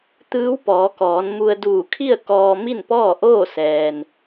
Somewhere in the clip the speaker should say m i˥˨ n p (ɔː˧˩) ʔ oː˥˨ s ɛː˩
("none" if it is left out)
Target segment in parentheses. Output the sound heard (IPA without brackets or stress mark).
ɔː˥˨